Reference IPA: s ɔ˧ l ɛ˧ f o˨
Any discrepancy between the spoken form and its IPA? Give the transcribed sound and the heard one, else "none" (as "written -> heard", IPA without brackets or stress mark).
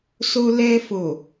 ɔ˧ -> o˧